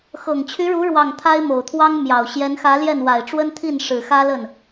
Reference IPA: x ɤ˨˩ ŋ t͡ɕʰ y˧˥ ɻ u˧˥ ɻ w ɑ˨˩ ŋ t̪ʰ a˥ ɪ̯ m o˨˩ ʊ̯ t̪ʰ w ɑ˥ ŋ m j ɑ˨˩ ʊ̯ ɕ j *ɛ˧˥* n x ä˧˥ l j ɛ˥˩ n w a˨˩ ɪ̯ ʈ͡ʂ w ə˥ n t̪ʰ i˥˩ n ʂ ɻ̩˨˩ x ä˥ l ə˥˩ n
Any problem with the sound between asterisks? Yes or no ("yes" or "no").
no